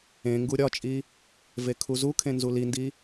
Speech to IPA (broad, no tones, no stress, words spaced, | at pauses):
ẽ ŋɡuɾʲɒt͡ʃʼi | vekʰuzukʰẽ nzulindi